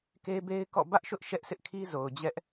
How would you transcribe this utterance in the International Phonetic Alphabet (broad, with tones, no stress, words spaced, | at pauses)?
ke˦be˦ɪ̯ kɔ̰˦˨ bä˦ʔʃʊ˦ʔ ʃɛ˦ʔsɪ˦ʔkʰi˦ zo˨ʊ̯d͡ʑɛ˦ʔ